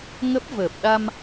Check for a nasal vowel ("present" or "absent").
absent